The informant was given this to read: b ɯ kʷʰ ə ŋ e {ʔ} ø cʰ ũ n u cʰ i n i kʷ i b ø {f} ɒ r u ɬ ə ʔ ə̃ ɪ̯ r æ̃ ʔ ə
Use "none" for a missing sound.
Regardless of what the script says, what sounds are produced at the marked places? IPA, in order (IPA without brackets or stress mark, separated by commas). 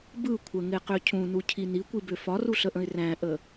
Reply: q, f